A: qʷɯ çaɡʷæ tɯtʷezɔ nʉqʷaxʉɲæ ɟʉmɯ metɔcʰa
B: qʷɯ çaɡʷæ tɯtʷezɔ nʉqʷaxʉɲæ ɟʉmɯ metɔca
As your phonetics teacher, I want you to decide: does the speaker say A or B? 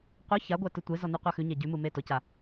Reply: B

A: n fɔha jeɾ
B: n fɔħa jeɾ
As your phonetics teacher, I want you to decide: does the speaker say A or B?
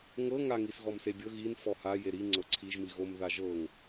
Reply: A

